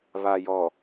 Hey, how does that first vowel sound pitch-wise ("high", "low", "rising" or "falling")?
low